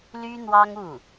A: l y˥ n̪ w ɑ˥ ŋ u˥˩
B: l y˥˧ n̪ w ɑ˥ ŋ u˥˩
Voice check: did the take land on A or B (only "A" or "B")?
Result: A